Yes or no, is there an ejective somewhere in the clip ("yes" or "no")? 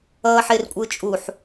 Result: yes